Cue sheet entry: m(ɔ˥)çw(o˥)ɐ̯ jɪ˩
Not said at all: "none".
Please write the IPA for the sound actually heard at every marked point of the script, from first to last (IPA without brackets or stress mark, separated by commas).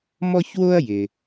ɔ˥, o˥